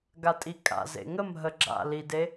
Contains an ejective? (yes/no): yes